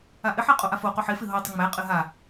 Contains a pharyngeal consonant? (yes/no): yes